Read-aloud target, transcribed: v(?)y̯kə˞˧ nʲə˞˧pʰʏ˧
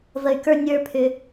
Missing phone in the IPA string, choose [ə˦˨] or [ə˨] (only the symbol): ə˨